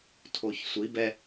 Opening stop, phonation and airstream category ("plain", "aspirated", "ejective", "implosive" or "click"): aspirated